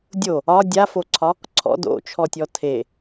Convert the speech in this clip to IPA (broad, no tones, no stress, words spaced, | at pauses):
dʲo | ɒ dʲafoǀʰɒ | ǀʰɔ̰ do̰t͡ʃʰɔtʲɔ tʰe